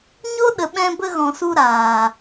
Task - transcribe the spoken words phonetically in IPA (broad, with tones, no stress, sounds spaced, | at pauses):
ɲ o˦ ɗ ə˨ ɓ ɛ̃˧ b ə˧ ɣ ɔ̃˨ s u˧ ɾ aː˨